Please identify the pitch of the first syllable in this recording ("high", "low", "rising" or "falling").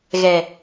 low